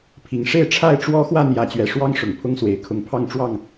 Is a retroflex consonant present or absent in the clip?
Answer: present